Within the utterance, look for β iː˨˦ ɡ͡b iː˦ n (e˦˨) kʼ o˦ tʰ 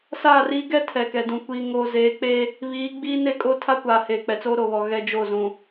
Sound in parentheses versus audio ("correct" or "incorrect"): correct